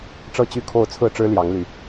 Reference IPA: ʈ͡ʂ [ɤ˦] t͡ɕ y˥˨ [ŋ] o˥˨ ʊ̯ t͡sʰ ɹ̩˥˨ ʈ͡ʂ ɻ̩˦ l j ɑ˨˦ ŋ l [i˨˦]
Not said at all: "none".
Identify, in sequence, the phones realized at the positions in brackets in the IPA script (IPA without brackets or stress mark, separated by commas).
ɤ˥˨, kʰ, y˨˦